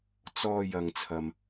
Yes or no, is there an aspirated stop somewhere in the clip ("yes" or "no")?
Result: yes